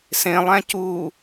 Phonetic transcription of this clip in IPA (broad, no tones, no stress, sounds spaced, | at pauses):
s ẽ lˠ æ̃ c u